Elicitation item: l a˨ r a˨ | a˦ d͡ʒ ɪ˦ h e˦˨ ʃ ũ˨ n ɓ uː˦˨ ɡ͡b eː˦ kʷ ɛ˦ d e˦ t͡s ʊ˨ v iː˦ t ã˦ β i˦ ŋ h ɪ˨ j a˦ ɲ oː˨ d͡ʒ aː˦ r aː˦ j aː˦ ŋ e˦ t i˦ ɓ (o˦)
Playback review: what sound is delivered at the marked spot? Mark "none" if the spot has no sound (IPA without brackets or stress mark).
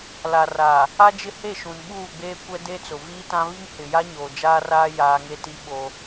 o˦